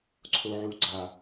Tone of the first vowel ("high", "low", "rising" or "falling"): low